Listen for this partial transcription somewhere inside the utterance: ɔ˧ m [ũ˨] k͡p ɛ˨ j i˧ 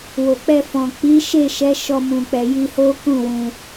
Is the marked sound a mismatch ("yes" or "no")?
no